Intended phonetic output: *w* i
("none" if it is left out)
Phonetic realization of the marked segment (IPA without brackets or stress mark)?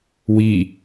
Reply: w